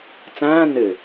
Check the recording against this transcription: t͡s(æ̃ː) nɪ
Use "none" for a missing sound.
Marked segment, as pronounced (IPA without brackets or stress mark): æ̃ː